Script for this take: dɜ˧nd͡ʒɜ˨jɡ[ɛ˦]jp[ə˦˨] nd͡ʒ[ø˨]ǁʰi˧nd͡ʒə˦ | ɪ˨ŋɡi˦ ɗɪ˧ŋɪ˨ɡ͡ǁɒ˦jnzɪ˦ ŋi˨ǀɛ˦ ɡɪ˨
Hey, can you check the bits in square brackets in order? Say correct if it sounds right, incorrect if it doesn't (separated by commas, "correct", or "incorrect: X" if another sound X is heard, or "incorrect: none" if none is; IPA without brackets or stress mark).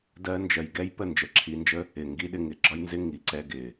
correct, correct, incorrect: ə˨